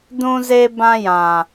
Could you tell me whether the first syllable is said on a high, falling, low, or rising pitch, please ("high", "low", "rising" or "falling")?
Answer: high